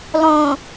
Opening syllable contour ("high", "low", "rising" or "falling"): low